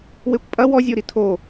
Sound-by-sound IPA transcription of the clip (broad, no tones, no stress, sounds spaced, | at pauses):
w e kʷ pʼ ɐ w ɔ zʲ o ɾ i tʰ o